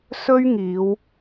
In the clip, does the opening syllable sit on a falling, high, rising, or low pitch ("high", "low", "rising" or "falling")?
high